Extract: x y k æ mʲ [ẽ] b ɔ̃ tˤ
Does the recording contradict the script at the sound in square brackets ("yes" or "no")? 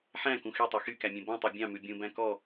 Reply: no